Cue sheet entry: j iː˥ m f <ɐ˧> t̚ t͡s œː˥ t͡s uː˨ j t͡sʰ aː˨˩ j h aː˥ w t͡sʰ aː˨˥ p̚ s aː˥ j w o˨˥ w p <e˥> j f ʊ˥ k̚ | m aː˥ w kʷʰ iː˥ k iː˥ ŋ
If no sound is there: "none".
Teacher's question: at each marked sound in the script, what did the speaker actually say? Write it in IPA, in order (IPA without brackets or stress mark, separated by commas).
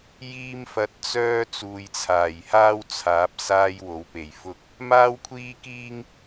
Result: ɐ˧, e˨˩